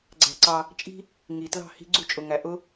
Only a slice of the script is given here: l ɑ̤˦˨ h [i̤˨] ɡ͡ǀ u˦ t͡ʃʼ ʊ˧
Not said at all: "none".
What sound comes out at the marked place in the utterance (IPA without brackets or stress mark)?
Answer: i̤˦